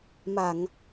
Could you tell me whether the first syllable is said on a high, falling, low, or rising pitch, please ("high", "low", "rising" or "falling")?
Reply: low